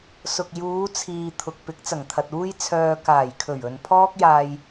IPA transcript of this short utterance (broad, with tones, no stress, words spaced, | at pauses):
sʊ˨k̚ juː˨˧ t͡sʰiː˨ t̪ʰʊ˨k̚ pɪ˨˥k̚t͡sɐ˨˩ŋt̪ʰɐ˨t̚ uː˥jt͡sʰœː˧ kaː˨˩jkʰɵ˨˩ɥɵ˨n pʰɔː˥k̚jaː˧j